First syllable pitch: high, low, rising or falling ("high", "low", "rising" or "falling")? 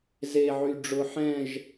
low